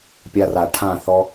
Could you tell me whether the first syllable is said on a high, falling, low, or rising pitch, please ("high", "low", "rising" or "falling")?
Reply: high